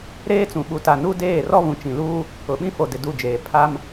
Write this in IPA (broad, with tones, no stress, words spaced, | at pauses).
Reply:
ɾeː˦t͡sũ˨ɓu˨ta˨ nu˦deː˦˨ rɔ˦βũ˨t͡ʃĩ˨luː˦ | ʊ˨ɓĩ˦fo˨dɪ˨ du˦˨d͡ʒeː˨ pʰa˦m